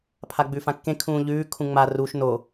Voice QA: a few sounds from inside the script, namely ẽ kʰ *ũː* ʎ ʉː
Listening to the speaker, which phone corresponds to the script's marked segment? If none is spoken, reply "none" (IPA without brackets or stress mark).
ũː